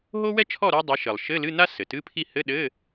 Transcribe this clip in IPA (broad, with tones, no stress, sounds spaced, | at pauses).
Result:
ɦ o˥ w ɛ˥ t͡ʃʰ ɔ˥˨ ɾ o˥ dˤ ɘ˨˦ ʃ ɘ˩ lˠ ʃ ɘ˧˥˧ l ɨ˧˥˧ n a˥ s ɘ˩ t ɨ˧˥˧ pʰ i˥˨ h ɘ˧˥˧ ɗ ɘ˧˥˧